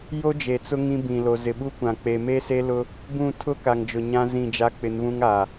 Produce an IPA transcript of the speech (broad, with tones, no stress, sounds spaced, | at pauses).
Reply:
j o˦ d͡ʒ e˨ t͡s ʊ˦ ŋ ĩ˦ b ĩ˨ l o˨ z ɪ˨ ɓ u˦ kʷ ã˨ k͡p e˨ m e˦ s e˦ l ʊ˦ | b ũ˦˨ tʰ ʊ˦ k a˨ ŋ d͡ʒ ʊ˨ ɲ ã˦ z ĩ˦˨ d͡ʒ a˦ k͡p ɪ˨˦ n β ũ˦ ŋ a˨